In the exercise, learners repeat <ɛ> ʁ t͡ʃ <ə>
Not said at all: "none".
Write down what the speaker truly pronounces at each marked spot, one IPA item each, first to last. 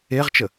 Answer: e, ə

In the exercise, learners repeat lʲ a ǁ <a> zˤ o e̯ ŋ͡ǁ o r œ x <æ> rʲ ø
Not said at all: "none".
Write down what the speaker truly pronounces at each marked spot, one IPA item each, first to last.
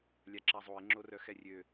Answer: a, ɛ

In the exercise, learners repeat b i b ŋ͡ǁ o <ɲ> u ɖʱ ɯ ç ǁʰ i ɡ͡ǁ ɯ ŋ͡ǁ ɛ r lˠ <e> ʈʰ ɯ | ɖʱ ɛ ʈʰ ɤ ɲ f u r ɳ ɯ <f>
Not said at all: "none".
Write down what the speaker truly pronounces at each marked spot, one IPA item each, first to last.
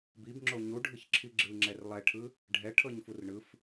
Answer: ɲ, ɛ, f

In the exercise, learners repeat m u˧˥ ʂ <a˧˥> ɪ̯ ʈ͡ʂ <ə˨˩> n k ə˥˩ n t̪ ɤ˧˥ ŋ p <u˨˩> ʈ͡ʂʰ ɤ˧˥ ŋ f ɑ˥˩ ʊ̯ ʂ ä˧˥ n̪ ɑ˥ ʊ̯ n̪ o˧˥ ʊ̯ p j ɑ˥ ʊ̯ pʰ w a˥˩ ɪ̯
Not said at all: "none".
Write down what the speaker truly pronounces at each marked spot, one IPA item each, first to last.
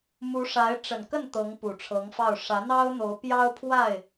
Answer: a˧˥, ə˨˩, u˨˩

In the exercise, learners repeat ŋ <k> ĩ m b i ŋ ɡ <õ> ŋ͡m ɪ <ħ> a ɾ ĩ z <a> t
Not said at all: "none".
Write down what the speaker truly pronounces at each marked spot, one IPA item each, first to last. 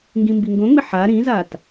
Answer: ɡ, õ, ħ, a

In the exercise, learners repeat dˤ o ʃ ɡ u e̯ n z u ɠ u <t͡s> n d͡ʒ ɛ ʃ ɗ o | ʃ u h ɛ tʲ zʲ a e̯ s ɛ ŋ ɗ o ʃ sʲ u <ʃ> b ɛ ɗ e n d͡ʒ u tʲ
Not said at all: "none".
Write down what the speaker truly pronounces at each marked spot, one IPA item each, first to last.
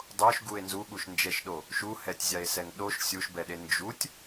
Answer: ʃ, ʃ

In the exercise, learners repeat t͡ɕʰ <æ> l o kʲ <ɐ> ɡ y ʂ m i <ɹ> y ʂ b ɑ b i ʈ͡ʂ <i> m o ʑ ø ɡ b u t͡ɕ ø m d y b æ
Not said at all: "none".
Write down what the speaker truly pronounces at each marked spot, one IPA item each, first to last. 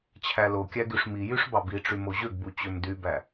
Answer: æ, æ, j, y

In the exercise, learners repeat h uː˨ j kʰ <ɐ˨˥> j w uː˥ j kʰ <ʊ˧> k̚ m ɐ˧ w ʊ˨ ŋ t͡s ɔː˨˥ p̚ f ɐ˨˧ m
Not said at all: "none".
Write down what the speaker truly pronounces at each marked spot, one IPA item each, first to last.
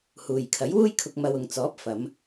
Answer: ɐ˨˥, ʊ˧

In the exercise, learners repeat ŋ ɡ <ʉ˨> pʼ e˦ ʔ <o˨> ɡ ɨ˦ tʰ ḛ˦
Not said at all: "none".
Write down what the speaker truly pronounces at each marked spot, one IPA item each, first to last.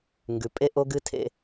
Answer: ʉ˨, o˦

